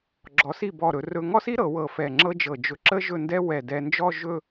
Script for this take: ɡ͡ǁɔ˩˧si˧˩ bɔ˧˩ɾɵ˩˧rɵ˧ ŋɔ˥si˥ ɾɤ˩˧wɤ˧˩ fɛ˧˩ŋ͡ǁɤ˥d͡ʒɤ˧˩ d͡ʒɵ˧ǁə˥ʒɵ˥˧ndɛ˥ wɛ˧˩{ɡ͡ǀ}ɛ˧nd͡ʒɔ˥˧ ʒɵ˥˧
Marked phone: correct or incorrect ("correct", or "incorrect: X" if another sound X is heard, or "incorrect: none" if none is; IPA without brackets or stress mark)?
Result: incorrect: d